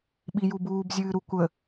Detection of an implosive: present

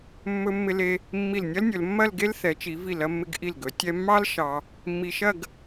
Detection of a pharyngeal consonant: absent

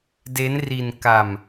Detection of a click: absent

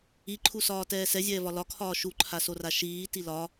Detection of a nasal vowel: absent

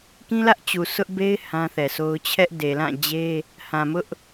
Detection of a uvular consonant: absent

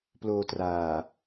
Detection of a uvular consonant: absent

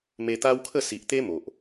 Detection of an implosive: absent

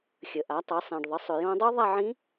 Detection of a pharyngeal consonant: present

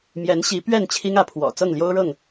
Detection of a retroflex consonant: present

